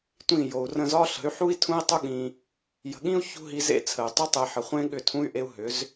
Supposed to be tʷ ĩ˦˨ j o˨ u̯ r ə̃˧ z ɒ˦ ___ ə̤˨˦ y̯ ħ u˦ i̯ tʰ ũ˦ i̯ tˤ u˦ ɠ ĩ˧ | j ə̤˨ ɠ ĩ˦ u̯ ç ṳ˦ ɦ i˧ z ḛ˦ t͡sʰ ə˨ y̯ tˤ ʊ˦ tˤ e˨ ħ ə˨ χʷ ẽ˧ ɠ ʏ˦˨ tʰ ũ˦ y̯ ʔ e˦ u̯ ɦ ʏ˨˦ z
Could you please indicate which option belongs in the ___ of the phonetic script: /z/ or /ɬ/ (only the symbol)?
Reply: ɬ